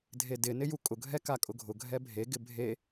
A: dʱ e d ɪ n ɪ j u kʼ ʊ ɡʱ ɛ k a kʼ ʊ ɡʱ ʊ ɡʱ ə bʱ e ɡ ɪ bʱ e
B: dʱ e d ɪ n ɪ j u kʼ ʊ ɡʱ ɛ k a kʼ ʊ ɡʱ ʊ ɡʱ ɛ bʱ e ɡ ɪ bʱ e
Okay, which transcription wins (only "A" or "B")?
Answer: B